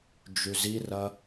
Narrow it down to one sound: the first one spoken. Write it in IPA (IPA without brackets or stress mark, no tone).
d͡ʒ